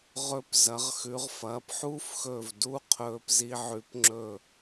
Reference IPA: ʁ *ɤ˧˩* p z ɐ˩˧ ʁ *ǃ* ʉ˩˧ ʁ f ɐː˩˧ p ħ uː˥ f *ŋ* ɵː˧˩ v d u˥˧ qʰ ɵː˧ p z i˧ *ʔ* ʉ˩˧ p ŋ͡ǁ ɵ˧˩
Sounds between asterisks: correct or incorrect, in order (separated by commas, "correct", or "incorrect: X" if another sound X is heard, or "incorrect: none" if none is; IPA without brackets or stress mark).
incorrect: ɵ˧˩, incorrect: x, incorrect: x, incorrect: ʕ